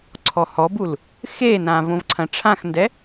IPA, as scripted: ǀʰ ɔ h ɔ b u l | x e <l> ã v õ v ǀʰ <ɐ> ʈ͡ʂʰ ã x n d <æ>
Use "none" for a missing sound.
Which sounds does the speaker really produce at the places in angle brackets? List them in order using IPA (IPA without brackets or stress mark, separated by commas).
n, ɐ̃, ɛ